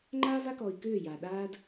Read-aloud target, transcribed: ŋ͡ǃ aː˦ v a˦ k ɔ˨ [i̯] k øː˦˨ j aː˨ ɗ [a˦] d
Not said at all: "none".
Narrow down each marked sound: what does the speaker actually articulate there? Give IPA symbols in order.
i̯, aː˦

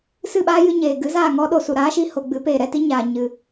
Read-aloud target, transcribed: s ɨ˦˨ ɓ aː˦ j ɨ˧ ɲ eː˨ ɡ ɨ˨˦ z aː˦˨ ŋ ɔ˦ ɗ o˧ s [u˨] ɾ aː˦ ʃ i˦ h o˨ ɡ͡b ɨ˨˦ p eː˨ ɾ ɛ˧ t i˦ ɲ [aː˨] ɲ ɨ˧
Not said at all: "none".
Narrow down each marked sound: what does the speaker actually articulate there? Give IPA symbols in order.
u˨, aː˨

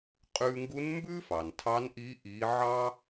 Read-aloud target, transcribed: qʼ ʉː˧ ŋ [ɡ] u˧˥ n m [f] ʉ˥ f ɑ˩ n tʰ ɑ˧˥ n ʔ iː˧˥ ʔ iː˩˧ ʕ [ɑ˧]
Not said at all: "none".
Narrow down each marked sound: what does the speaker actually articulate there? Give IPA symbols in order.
ɡ, b, ɑ˧

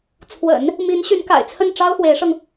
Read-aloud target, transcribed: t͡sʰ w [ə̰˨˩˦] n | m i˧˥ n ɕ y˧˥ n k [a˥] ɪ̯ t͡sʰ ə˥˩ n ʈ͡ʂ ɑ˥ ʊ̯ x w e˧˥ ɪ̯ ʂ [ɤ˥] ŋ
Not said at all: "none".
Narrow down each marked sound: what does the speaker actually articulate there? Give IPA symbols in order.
ə̰˨˩˦, a̰˨˩, ɤ˧

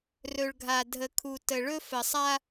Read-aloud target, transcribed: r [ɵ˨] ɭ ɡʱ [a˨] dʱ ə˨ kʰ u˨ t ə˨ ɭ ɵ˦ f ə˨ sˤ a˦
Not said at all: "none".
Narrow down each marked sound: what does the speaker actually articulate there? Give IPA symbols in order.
ɵ˨, a˨

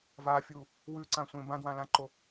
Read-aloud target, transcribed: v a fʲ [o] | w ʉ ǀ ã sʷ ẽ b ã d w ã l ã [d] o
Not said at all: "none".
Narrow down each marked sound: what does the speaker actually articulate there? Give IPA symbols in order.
u, ǃ

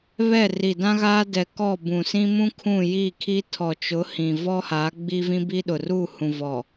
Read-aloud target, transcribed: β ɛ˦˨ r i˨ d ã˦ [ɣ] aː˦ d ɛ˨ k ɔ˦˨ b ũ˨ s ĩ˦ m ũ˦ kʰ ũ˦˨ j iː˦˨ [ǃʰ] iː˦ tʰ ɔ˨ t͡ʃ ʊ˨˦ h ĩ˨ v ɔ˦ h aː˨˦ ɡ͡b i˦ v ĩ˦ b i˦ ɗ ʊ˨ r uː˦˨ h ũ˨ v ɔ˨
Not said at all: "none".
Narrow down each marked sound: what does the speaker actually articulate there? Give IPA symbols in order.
ɣ, kʰ

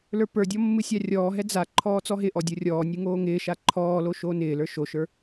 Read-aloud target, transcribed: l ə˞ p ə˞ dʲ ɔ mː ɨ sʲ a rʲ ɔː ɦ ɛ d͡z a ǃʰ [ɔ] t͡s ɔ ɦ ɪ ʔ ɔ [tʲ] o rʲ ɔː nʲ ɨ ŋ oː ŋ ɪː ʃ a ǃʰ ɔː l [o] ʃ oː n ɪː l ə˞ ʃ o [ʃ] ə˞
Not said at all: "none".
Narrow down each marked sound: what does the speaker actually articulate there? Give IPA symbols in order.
ɔː, dʲ, o, ʃ

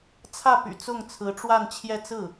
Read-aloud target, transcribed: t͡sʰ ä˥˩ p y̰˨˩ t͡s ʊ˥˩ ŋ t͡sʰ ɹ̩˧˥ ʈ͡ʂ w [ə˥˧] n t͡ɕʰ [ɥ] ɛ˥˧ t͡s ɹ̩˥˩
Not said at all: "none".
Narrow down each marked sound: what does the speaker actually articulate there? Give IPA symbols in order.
a˥˧, j

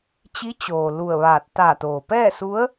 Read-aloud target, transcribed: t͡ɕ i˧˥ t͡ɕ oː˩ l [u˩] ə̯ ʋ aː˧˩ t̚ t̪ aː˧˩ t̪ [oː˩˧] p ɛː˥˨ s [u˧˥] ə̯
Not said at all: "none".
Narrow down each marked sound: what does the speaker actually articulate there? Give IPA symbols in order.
u˧˩, oː˩, u˧˥

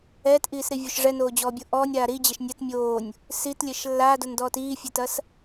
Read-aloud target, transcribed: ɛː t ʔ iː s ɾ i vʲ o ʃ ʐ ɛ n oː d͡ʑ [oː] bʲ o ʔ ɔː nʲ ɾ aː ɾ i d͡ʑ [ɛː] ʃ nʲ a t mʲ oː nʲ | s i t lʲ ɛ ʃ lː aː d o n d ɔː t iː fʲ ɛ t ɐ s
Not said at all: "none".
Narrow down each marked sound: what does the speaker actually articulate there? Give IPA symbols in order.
ɔː, ɛ

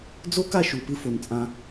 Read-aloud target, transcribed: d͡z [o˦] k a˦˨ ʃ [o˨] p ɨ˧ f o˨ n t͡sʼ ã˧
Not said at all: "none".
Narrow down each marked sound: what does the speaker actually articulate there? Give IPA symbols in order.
o˦, u˨

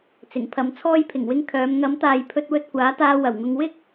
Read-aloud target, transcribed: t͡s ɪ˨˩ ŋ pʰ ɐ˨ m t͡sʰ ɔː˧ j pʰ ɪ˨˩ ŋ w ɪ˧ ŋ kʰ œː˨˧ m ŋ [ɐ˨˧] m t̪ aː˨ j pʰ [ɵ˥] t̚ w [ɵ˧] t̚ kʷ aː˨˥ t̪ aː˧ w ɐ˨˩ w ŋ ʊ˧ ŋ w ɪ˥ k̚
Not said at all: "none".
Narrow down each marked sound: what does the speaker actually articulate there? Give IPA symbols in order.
ɐ˨˧, ɵ˧, ɵ˧

